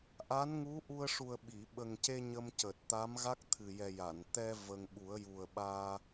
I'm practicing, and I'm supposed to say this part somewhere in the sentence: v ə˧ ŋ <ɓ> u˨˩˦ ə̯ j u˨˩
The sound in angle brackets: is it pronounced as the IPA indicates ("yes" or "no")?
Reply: yes